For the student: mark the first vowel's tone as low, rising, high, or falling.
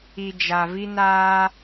low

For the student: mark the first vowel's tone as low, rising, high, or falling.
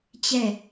falling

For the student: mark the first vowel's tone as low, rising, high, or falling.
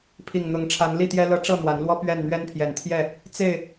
low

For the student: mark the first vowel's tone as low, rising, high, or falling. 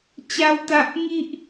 high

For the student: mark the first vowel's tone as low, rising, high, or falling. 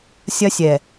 high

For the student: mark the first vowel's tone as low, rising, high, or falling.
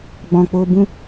low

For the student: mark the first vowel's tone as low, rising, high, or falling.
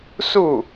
falling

